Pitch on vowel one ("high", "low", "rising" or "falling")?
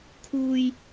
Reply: low